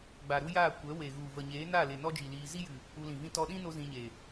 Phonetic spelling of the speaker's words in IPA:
ɡ͡b a˨ ɾ u˦ j aː˦˨ kʷ ɛ˨˦ w e˨ ɣ u˨ v ə˨ ɲ eː˨˦ n a˦˨ l e˨ n ɔ˦ d͡ʒ i˨ l iː˧ z i˦ j ɨ˨ | u˧ l ĩ˨ v ĩ˦ t ɔ˧ ɗ ĩ˦ n o˧ z ĩ˧ ɲ e˨

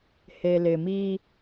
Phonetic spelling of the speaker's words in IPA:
h e˨ l ɪ˨ m i˦

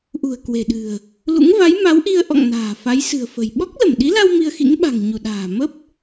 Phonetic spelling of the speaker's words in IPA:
ʔ ṳ˨˩ ə̯ k w e̤˨˩ ɗ ɨ̤˨˩ ə̯ | l ṵ˧˥ ŋ v a˨˦ j m a˨˦ w ʔ i˧ ə̯ ʔ ɔ̰˧˨ ŋ n a̤ː˨˩ f a˨˦ j s ɨ̤˨˩ ə̯ f ə̤˨˩ j ɓ ɔ˦˥ k̚ l ə˧˩ m ɗ i˨˦ l a˧ w m i˧ ə̯ x ḭ˧˥ ŋ ɓ a̤˨˩ ŋ ɲ u˧˩ ɗ a̤ː˨˩ m ə˦˥ p̚

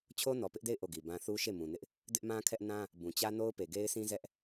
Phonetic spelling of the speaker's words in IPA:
t͡ɕʰ o˦ n ɔ˨ p ɪ˦ ʔ d e˦˨ ɪ̯ ʔ o˦˨ ɡ i˨ b ã˦ θ u˦ ʃ e˦˨ m ũ˨ n ɪ˦ ʔ | d ɪ˦ ʔ m ã˦ kʰ ɛ˦ ʔ n ã˦ | b ũ˨ t͡ɕ ä˦ n o˦ ʊ̯ p e˨ ɡ e˦ ɪ̯ s ĩ˦ z ɛ˦ ʔ

